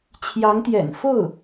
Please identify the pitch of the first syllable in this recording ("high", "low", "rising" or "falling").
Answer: rising